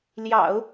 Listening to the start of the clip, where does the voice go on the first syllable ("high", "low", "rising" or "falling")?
low